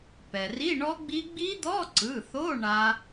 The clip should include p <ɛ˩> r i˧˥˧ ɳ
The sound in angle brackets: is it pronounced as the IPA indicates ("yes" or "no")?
yes